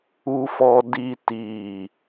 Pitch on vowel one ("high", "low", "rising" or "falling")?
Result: high